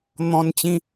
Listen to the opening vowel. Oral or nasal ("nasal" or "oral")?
nasal